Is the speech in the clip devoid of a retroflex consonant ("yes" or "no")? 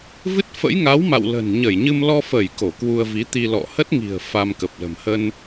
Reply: yes